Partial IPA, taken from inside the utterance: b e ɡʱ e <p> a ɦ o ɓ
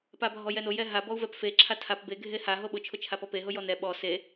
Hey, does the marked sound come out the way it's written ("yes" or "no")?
no